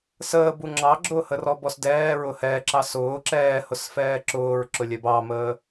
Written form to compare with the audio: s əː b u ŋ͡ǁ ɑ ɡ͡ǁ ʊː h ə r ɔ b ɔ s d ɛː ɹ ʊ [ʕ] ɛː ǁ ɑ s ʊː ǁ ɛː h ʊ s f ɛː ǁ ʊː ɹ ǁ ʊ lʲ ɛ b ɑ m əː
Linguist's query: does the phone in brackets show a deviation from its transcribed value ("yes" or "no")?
yes